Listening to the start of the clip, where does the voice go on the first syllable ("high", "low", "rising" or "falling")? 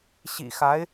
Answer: low